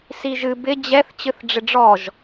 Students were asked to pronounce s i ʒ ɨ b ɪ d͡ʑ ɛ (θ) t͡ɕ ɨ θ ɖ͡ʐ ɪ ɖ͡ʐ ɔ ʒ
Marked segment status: correct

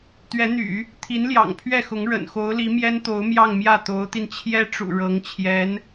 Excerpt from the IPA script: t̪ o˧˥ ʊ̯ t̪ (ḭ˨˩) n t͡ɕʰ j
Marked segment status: incorrect: i˧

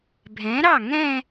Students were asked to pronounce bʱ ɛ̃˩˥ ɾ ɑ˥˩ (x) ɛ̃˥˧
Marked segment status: incorrect: ŋ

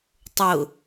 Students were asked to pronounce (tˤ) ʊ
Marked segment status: correct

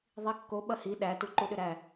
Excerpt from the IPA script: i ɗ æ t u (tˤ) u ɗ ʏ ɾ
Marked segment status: incorrect: ǃ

